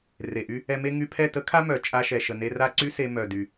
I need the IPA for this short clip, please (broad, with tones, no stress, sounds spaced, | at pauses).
r e˨ ʔ y˦ | ɛ˧ m e˦ ŋ y˧ pʰ ɛ˦˨ t ə˦ kʰ a˦ m œ˨ t͡ʃʼ a˧ ʃ ɛ˨ ʃ ə˨ n e˧ r a˦ ǀ y˦ s e˧ m œ˨ d y˨